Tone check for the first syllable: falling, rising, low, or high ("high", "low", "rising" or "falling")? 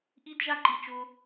high